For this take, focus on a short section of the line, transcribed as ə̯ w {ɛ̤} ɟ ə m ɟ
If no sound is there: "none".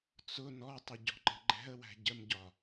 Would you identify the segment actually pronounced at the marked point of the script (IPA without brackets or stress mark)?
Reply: æ̤